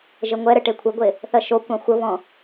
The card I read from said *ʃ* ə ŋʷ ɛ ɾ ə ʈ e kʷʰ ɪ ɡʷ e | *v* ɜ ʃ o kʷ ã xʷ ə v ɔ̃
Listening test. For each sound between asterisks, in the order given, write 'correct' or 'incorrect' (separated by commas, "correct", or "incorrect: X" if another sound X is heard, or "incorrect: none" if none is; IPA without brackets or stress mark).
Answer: incorrect: ʒ, incorrect: θ